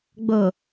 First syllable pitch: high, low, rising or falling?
low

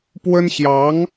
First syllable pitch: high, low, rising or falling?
high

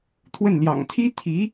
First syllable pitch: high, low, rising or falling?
falling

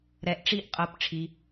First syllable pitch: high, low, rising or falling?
low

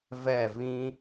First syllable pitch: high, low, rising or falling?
falling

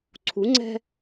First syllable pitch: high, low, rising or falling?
rising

